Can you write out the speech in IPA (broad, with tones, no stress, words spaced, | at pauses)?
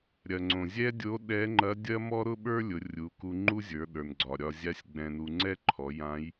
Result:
ɾʲɐ˩ŋ͡ǀõ˩zʲɛ˥ dʲo˧˥ ɗɛ˧˥ŋ͡ǃɐ˧˥ dʲɐ˥mɔ˥ ɾʊ˥ɓə˞˥lʲʊ˩˧ rʲu˩˧ ku˧ŋ͡ǃu˥zʲə˞˩˧ ɗə˞˩nɡ͡ǀɒ˩ ɾʲɒ˧zʲa˥sʲɡ͡bɛ̃˧nu˧ ŋ͡ǀɛ˥ǃʰɔ˩˧ jã˧˥j